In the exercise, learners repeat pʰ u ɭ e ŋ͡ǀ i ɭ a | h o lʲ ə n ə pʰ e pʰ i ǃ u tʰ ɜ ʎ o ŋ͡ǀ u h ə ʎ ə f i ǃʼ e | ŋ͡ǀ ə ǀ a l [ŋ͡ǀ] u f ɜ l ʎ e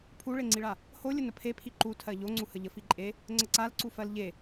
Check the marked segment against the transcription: incorrect: ǀ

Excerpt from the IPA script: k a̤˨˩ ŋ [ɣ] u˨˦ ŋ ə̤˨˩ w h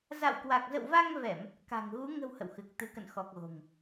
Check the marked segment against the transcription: correct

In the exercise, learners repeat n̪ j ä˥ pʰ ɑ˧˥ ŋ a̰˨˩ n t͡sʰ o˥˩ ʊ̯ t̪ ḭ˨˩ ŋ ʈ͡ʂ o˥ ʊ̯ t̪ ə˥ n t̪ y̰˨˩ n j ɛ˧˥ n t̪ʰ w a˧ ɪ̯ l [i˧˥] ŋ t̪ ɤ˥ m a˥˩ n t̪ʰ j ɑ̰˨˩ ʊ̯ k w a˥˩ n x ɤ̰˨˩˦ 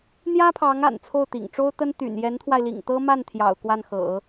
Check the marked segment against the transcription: incorrect: ḭ˨˩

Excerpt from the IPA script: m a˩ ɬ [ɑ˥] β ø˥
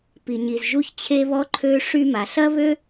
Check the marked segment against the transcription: incorrect: ɐ˥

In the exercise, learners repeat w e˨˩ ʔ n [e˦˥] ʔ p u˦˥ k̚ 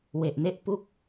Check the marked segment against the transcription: correct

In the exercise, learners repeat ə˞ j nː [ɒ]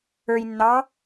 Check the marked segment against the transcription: incorrect: ɑ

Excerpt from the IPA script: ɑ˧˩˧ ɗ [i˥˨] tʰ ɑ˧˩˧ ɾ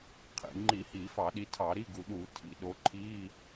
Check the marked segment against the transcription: incorrect: i˨˦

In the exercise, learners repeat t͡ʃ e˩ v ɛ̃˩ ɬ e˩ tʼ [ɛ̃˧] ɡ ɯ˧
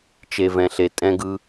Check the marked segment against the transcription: correct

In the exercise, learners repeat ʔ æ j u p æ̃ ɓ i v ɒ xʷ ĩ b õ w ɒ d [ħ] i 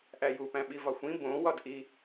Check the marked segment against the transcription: incorrect: ʔ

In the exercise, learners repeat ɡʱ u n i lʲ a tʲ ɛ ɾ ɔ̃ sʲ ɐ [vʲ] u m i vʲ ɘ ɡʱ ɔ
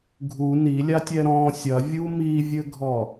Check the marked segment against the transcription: correct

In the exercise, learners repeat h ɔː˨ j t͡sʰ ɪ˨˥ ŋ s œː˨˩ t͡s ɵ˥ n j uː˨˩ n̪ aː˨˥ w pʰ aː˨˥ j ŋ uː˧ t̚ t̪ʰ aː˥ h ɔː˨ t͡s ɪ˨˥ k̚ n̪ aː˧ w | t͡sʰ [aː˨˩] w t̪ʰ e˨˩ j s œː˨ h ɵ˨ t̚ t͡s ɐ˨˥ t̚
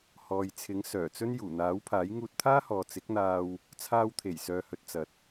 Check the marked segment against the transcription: incorrect: aː˧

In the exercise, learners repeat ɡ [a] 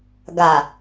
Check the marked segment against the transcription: correct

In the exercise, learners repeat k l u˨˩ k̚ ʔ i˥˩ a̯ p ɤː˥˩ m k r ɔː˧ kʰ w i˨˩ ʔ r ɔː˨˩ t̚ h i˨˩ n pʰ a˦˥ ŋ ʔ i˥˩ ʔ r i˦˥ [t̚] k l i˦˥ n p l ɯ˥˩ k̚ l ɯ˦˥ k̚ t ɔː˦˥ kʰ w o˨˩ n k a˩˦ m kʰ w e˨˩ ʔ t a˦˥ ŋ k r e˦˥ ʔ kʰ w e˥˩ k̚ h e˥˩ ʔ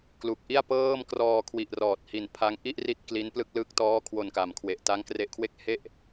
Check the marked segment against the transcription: correct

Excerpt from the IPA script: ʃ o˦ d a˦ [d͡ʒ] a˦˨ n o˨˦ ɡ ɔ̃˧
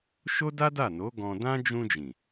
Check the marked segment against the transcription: incorrect: d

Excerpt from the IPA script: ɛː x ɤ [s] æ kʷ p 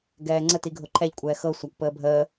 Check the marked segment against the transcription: incorrect: sʷ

